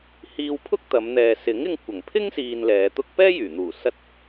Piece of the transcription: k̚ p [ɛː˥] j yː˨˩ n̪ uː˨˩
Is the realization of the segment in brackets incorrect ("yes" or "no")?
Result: no